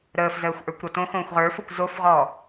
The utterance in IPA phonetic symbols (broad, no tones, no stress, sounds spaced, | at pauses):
ɾ əː f z əː xʷ ʔ ə˞ kʷ ɾ ɔ t õ x õː xʷ ʁ ə˞ f o kʷ z o f ʁ ɔ